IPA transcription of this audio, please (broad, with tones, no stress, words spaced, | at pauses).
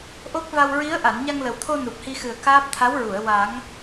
ʔo˦˥k̚va˧w ɹi˧˥ə̯ ʔa˨˩˨nɲa˧ŋlə˨˩wt̪ʰo˧ nu˨˩p̚hi˧xɨ˨˩ə̯ kaː˦˥p̚ t̪ʰa˧˥wɹu˨˩˨ə̯ wa˨˩˦ŋ